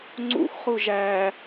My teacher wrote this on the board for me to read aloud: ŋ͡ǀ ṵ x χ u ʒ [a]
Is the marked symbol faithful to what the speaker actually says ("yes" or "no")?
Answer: no